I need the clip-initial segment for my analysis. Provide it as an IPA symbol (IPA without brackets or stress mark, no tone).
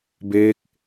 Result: b